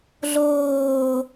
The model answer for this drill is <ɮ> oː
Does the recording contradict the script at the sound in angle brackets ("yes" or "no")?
no